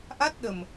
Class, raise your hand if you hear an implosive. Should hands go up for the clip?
yes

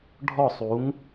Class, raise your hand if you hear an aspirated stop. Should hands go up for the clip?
no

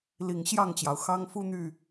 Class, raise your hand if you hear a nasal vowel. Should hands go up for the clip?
no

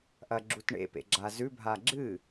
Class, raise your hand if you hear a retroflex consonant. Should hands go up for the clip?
yes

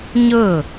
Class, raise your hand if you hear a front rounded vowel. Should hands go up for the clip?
no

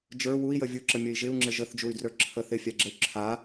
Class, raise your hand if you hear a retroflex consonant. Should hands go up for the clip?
no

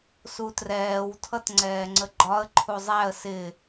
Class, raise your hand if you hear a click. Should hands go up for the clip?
yes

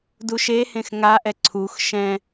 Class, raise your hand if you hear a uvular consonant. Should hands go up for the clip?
no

